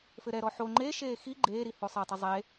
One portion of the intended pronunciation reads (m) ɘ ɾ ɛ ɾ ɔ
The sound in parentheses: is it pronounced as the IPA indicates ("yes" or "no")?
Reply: no